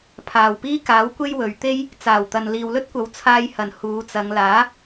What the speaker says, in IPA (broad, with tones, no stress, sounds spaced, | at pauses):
pʰ aː˨˩ w p iː˥ k aː˨˥ w kʷ e˥ j w ɵ˨ ɥ t̪ e˥ j | t͡s aː˨˩ w t̪ ɐ˨ n l iː˨ w l ɵ˥ t̚ kʷ ɐ˨˥ w t͡sʰ aː˧ j h ɐ˨˩ n h uː˨˧ t͡s ɐ˨˧ ŋ l aː˨˥